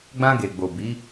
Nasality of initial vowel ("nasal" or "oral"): nasal